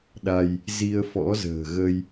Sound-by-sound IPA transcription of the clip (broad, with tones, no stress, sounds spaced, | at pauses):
ɗ a˧ j | z i˧ ə̯ f ɔ̰˧˥ z ə̤ː˨˩ ɣ ə˧ j